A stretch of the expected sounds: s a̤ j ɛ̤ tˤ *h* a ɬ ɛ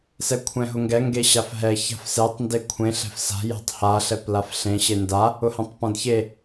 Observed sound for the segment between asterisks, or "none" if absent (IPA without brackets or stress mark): h